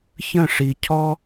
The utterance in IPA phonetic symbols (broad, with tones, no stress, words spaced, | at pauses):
çə̃˥˩ʂi˩ cʰɔ˥